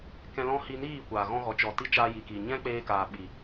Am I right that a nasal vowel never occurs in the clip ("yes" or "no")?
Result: no